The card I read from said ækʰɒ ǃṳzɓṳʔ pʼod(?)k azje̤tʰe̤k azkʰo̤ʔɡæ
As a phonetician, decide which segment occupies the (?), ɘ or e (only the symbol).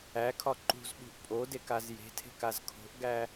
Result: e